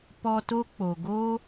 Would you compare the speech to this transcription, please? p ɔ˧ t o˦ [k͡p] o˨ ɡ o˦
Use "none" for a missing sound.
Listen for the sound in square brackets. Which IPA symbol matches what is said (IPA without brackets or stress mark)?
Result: k͡p